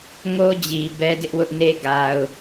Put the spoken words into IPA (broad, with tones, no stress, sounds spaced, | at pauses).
ŋ o˦ d͡ʑ i˨ b ɛ˦ d ɪ˦ ʔ w ʊ˦ ʔ n e˦ ɡ a˨ ʊ̯